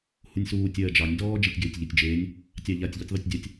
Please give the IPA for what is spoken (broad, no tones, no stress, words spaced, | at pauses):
hunʲsuː tʲɜːd͡ʒɑnʲ dɔː d͡ʒetʲɡeːtʲʎetʲd͡ʒeːnʲ | tʲɑʎatʲ ʎɨtʲðˤetʲdʲatʲ